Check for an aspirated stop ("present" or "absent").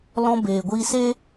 absent